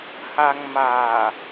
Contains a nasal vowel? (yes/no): no